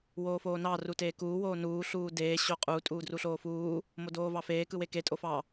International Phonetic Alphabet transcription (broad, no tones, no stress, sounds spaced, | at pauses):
w oː f oː n ɑ r u t eː k uː w oː n uː ɬ uː d eː ɕ o qʼ u tʼ uː d r u ɬ oː f uː | m o d oː v ɑ f eː k ɯ w e k e tʼ o f ɑ